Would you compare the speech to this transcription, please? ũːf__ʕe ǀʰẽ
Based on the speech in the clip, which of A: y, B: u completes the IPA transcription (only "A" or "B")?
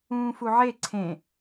B